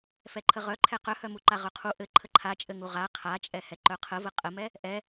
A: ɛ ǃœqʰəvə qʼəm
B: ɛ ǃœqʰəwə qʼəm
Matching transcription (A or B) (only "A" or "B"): A